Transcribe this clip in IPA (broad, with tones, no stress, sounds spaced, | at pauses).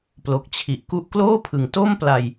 p l o˨˩ k̚ t͡ɕʰ i˨˩ ʔ k u˦˥ ʔ k l oː˥˩ pʰ ɯ˨˩ ŋ t o˥˩ m p l a˧ j